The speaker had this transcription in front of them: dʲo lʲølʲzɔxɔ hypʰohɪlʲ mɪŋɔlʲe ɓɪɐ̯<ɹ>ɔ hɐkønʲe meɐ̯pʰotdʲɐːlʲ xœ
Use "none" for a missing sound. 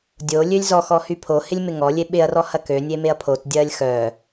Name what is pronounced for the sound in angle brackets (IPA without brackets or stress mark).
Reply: r